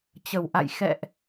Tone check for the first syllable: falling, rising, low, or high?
low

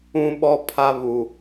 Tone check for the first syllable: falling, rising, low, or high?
high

